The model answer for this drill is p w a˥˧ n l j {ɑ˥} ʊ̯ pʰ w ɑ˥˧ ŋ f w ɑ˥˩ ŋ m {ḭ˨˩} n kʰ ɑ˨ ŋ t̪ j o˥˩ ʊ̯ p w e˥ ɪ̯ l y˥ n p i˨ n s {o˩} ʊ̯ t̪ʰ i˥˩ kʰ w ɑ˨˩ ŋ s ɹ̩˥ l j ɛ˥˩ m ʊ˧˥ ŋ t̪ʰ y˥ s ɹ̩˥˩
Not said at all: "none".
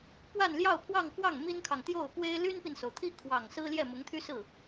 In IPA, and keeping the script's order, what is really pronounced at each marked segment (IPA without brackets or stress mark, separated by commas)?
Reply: ɑ˥˧, i˥, o˩